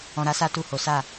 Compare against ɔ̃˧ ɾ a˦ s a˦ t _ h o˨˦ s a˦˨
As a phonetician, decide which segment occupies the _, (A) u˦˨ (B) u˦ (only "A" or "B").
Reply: A